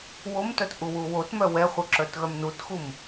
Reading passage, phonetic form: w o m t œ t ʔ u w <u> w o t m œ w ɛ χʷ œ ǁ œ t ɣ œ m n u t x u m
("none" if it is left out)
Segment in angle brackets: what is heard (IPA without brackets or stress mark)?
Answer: u